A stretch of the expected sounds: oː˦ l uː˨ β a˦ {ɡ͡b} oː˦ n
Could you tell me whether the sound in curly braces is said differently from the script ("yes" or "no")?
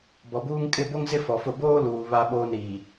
yes